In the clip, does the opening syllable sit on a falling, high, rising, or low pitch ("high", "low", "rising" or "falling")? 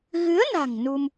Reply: rising